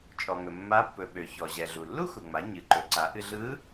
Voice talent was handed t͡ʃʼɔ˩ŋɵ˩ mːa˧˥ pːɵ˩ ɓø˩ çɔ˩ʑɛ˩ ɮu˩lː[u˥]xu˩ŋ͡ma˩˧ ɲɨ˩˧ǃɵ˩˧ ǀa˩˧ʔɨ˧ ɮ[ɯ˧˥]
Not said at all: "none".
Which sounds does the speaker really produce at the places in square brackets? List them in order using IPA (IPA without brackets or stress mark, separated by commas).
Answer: u˥, ɯ˧˥